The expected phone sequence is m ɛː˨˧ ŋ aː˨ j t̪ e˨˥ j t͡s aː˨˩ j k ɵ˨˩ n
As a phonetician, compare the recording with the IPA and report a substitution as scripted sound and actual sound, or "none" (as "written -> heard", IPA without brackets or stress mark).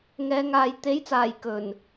m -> ŋ